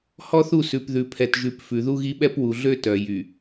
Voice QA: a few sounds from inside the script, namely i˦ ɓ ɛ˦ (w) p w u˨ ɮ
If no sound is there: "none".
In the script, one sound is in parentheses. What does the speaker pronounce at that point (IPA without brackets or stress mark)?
none